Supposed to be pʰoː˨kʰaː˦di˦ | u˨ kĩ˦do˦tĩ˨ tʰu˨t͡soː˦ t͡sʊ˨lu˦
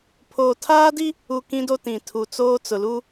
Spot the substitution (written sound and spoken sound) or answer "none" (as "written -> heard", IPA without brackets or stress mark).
kʰ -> tʰ